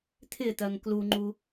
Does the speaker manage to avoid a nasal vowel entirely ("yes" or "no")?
yes